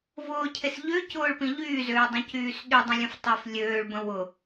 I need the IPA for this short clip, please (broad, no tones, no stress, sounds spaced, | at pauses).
v ʊː cʰ e s ʎ ø c ʊː ɭ p ĩ ʎ yː z øː dˤ õ c yː s ɗ y dˤ ə̃ lʲ ə̃ f tˤ əː f lʲ øː ɭ b ə̃ w ʊ